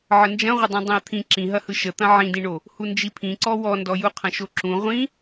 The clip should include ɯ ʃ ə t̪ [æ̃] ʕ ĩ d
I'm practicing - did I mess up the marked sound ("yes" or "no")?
yes